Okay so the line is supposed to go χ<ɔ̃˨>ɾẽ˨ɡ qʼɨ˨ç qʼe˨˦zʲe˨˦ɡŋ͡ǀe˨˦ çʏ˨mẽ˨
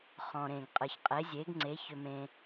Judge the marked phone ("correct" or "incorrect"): correct